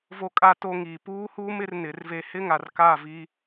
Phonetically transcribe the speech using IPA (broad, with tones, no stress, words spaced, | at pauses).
vo˨kʼa˨to˨ ŋiː˨puː˦huː˦m ɪ˦rnɪ˨˦rve˦ hɪ˦ŋa˨rka˦˨ vi˦